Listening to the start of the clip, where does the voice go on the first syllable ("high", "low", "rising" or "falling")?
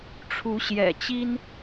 rising